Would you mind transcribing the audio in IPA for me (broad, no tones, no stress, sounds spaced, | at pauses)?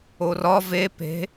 o r ɒ v e p e̤